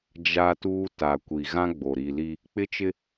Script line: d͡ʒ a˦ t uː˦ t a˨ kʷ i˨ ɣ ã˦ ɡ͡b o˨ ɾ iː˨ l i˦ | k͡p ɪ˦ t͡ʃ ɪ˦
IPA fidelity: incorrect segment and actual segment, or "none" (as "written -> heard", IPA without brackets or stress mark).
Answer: none